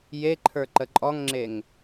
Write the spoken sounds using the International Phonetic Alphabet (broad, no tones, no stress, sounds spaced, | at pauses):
j e ǃʰ ə˞ ǃ ə ǃʼ ɔ ŋ ŋ͡ǁ e ŋ